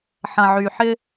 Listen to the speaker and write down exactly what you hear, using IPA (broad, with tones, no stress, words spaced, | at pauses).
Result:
ħɐ̃˨ʕy˨ ħɪ˦